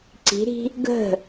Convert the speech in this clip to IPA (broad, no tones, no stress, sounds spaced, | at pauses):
ǀ i̤ ɾ i̤ | ɡ ə̤